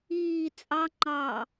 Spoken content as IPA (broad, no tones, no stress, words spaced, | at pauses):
iː t͡sʼɑ ŋ͡ǃɑ